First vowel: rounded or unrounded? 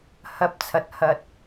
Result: unrounded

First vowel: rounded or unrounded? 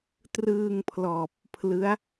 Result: unrounded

